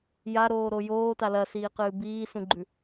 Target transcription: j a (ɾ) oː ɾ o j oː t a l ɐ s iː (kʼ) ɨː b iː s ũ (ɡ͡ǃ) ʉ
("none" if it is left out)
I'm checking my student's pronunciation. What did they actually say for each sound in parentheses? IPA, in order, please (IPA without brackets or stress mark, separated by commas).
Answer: ɾ, q, ɡ͡ǃ